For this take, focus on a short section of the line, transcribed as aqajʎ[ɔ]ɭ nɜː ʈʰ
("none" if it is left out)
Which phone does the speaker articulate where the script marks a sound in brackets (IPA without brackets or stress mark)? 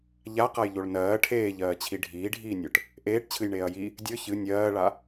o